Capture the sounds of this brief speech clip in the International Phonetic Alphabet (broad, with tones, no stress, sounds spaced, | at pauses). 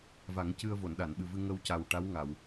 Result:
v a˨˩˦ ŋ c ɨ˧ ə̯ v o˨˩˨ n ɗ a˨˩˨ n ɓ ɨ˨˩ v ɨ˧ ŋ ə˧ w c a˨˩ w ʈ a˧˥ w ŋ a˨˩˨ w